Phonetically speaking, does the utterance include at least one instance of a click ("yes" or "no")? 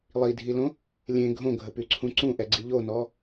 yes